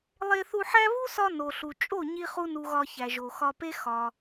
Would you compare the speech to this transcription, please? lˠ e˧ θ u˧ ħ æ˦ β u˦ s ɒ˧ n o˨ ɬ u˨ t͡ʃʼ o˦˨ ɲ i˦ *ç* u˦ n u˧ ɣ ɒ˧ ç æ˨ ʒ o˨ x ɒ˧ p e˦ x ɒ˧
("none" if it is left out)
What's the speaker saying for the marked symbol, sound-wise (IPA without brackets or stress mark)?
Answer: χ